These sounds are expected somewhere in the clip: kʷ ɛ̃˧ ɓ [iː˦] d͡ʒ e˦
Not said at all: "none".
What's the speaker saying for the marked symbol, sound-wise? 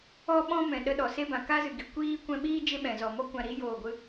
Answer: iː˦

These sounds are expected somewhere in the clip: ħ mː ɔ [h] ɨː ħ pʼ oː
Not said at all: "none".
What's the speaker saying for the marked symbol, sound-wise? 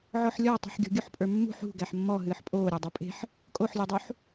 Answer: ɦ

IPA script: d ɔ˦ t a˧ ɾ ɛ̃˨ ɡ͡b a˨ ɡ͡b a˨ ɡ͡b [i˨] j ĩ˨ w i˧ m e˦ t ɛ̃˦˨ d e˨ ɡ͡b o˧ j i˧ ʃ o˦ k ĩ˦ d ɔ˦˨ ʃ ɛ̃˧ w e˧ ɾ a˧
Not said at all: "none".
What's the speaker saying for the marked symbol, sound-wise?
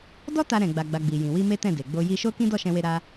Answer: i˨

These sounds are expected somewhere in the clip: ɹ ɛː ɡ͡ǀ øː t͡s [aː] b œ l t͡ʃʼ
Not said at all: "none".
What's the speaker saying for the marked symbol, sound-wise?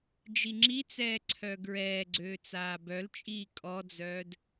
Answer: aː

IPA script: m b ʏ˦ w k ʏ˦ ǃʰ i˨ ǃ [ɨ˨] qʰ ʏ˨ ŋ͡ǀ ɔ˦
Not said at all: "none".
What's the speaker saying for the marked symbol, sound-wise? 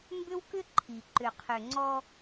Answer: ʏ˨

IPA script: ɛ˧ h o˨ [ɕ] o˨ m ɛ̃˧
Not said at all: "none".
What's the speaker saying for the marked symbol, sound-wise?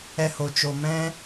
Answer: t͡ʃ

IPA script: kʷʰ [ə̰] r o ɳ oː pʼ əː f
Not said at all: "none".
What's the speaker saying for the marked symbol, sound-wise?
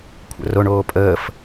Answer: ə̰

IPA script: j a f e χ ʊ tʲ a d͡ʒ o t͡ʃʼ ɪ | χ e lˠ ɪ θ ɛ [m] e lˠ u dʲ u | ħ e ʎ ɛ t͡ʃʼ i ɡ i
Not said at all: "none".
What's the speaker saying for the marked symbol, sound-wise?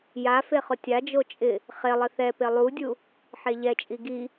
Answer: p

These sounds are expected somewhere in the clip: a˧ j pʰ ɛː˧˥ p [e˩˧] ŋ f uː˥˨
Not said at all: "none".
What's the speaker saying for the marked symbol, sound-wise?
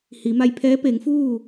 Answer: e˩˧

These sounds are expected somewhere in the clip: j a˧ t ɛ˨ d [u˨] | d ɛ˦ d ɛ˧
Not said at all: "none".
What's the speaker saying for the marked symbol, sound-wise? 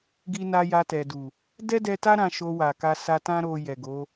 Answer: u˨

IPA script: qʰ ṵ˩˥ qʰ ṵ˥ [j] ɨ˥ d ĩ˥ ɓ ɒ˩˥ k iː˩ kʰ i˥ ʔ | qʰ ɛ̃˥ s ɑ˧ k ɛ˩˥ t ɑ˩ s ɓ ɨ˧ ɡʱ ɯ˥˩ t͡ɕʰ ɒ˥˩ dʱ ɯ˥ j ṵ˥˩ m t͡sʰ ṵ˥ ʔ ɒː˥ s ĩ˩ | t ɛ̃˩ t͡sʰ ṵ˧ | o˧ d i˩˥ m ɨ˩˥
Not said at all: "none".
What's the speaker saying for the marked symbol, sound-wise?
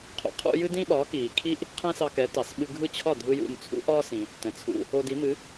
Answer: j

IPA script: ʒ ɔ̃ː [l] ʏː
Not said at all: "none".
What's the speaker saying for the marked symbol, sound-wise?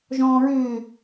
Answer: ɹ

